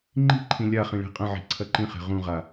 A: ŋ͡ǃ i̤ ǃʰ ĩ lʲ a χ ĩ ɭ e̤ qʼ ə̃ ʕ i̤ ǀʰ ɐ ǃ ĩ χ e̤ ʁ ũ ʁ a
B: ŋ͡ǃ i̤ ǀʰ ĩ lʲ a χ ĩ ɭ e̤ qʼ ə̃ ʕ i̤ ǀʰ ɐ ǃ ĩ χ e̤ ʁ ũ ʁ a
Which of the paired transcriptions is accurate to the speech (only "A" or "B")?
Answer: A